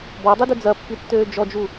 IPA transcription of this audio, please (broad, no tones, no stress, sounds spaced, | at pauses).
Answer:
b ɔ dˤ i d ø d͡z ɐ pː i tː øː d͡ʒ ɔ d͡ʒ u